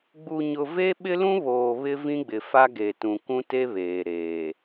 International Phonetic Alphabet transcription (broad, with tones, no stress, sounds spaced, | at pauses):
ɡ͡b u˨ ɲ ʊ˨ v e˦ ɓ ɪ˦ l ũ˦ β oː˨ β ɪ˦ v ĩ˦ ɡ͡b ɪ˨ f a˦ ɡ e˨ t ũ˨ k ũ˦ t e˦ β eː˨ ɾ eː˨